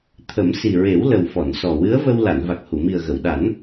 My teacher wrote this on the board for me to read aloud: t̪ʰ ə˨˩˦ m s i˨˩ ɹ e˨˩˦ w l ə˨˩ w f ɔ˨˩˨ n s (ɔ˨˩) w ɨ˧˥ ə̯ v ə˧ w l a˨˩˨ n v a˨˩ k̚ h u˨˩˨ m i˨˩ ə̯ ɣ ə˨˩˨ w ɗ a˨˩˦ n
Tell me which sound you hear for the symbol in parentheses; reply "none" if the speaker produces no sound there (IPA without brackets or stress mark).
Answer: ɔ˨˩